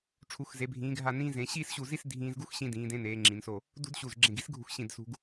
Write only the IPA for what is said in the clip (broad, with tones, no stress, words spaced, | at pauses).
ʈ͡ʂʰu˩˧xze˩˧bʱĩː˩˧ ɡʱa˧˩nĩː˧zẽ˩˧ ɕiː˥˧sɕu˧˩zi˥˧s dʱĩː˧zɡu˥xɕĩ˧ dĩː˩˧dẽ˧neː˩˧ ŋ͡ǁĩ˩˧nso˧˩ | dṳ˧d ɕu˧˩zɡ͡ǁẽ˧˩ɡi̤˥sɡʱṳ˧x ɕĩ˧˩d sṳ˧ɡ